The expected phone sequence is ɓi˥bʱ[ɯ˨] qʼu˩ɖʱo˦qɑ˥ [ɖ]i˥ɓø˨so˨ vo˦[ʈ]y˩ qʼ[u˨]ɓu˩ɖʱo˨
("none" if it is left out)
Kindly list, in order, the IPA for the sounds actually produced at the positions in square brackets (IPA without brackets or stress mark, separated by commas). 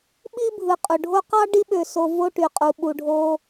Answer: ɯ˨, ɖ, ʈ, u˩